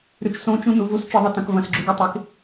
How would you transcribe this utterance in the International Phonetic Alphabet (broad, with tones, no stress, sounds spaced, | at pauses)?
ɾ ʉ˨ t͡ʃ s õ˦ t͡ʃ ũ˦ n u˨˦ v u˦ s t͡ʃ ɨ˨ ðˤ ɨ˨ t ɐ̃˨ k v ɐ̃˨ s ɡ͡ǁ ʉ˨ ɡ ɐ˦ tˤ e˨˦ k